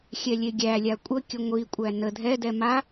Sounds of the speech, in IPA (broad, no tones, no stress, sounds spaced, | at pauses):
xʲ ɛ lʲ e ɡʲ æ lʲ a kʷʼ ə kʲ ə ŋʷ i kʷʼ æ n ə dʱ ɛ d ɛ m a